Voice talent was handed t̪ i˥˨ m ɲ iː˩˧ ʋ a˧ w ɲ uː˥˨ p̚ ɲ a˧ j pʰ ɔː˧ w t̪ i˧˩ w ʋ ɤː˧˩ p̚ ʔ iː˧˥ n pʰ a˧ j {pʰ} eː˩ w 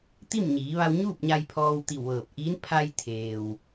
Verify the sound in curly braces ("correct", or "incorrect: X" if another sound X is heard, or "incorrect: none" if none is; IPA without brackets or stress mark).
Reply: incorrect: t̪ʰ